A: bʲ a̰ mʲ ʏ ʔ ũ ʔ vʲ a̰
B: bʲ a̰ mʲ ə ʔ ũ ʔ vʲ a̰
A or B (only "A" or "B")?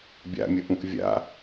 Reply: B